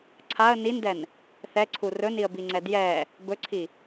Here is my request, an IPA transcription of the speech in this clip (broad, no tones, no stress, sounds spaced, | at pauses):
ǀʰ a ə̯ n i n d ɛ n | θ ɛ ǀʰ u r ɵ n i ə̯ b i ŋ͡ǀ ɛ d j ɛ | b ɵ ǀʰ i